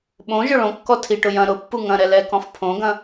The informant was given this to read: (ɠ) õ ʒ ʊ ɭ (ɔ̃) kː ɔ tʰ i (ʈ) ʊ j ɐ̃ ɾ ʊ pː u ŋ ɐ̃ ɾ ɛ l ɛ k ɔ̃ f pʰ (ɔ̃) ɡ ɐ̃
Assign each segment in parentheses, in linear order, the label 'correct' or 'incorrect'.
incorrect, incorrect, correct, incorrect

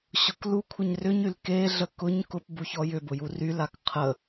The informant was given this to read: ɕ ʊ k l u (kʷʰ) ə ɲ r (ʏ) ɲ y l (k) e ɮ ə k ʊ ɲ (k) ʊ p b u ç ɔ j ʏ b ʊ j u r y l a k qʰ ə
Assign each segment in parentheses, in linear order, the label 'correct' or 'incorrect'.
correct, correct, correct, correct

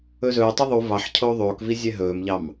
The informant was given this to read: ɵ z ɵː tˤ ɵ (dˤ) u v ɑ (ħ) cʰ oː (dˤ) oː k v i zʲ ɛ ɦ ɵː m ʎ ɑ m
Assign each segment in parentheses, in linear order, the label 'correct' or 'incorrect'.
incorrect, correct, incorrect

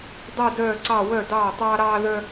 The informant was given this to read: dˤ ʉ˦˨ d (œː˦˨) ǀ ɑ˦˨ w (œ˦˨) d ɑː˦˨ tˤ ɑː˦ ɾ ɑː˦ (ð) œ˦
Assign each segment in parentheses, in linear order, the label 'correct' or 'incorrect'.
correct, correct, correct

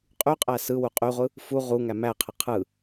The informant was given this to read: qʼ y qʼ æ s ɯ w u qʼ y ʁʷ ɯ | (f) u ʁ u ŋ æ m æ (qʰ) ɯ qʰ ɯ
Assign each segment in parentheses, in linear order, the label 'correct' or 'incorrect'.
correct, correct

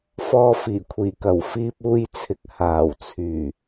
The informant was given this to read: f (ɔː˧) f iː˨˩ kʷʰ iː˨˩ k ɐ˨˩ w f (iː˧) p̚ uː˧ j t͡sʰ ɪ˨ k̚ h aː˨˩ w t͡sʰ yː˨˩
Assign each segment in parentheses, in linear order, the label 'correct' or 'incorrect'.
correct, correct

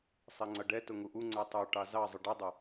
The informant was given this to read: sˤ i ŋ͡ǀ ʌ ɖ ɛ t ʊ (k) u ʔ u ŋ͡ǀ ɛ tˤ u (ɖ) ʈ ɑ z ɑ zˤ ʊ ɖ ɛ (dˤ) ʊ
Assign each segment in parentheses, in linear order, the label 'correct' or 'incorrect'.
incorrect, incorrect, correct

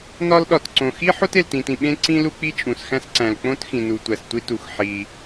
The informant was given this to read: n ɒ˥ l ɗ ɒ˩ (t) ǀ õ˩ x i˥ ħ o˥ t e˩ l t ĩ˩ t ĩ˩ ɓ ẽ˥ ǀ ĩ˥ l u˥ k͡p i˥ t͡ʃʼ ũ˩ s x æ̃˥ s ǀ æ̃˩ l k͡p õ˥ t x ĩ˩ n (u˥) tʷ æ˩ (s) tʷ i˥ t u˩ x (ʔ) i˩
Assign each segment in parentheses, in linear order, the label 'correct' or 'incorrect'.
correct, incorrect, correct, incorrect

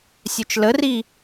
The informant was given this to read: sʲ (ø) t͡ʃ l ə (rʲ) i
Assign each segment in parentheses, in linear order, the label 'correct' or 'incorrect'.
correct, incorrect

